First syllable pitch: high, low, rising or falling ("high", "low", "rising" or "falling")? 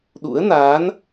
rising